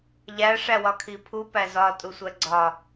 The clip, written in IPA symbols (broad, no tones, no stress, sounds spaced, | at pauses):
ʎ æ ʂ æ w ɒ kʰ i pʰ u p æ z ɒ tʼ u sʷ æ ɡ͡ǀ ɒ